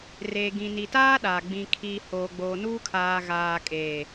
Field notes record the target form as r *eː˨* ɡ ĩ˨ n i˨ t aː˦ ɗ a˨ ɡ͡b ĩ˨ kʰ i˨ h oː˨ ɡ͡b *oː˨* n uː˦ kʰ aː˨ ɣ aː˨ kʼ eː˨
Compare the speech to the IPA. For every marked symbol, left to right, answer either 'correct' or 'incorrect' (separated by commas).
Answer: correct, correct